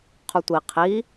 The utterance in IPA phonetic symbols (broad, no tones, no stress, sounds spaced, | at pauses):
qʰ u tʷ i qʰ i